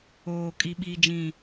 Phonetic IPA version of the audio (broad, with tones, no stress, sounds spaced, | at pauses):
oː˨ kʼ i˦ ɓ iː˦ d͡ʒ ĩ˦˨